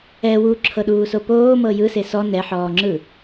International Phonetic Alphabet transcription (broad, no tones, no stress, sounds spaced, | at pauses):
ɛ w u ǁʰ ɤ ɗ uː s o p oː m ɤ j ɯ s e s ɔ n ɛ ħ ɔː ŋ͡ǁ ɯ